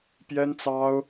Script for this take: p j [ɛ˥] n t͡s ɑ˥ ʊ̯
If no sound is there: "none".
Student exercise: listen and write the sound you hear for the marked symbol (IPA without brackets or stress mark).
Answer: ɛ˥